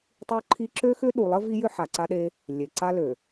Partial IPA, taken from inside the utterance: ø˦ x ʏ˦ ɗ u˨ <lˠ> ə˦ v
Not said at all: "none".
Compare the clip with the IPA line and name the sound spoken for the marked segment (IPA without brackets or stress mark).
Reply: lˠ